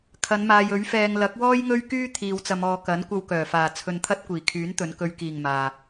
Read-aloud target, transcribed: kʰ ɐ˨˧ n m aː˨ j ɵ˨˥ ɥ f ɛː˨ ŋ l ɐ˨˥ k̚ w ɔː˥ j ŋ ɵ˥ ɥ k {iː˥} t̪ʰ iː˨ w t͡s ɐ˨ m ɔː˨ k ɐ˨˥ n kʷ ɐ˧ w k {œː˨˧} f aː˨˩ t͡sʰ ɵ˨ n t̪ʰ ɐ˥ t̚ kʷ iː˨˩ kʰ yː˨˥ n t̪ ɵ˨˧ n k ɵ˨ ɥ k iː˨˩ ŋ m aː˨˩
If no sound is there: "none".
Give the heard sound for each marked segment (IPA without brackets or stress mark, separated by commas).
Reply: yː˥, œː˨˩